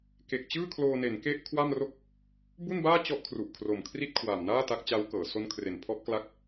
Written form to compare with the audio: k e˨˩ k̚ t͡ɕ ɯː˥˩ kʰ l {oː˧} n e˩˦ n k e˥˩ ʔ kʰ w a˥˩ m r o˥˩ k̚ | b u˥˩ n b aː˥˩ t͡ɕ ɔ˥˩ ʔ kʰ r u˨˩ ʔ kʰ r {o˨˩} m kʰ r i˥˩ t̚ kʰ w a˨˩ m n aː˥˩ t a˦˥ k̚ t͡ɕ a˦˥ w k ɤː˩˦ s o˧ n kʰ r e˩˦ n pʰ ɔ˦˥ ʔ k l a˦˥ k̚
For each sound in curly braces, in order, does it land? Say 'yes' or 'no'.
yes, yes

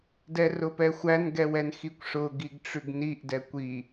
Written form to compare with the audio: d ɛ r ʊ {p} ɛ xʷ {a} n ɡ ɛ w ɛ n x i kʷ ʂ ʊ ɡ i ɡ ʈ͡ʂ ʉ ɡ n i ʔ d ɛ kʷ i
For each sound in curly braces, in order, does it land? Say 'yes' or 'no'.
yes, no

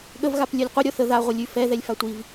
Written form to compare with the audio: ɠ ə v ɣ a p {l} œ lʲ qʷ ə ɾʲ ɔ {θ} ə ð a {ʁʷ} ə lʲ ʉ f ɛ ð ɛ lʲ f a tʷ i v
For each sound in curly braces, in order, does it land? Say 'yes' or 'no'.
no, yes, yes

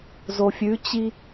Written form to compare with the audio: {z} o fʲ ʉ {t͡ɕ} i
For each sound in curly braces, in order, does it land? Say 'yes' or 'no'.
yes, yes

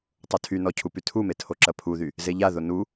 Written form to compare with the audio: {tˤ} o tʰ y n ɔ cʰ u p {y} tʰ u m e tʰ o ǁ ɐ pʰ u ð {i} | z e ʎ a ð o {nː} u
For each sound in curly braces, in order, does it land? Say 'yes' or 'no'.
yes, yes, no, no

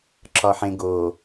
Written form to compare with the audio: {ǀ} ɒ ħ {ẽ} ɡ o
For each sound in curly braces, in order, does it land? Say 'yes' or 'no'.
no, yes

